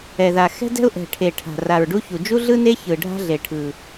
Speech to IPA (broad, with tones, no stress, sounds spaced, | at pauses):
ɛ˨˩ ð a˨˩ x ɛ̤˥ d ɛ̤˥ ʊ̯ ʔ ɛ̤˨˩ ʈʰ e˨˩ ʈʰ a̤˨˩ r a˨˩ ɹ ɖ u˥ ç u˨˩ d͡ʒ u˥ ɮ ɯ˥ n e˥ ç ɯ˨˩ ɖʱ a̤˥ ɮ e˨˩ ʈʰ ɯ˨˩